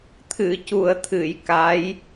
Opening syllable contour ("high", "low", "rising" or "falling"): low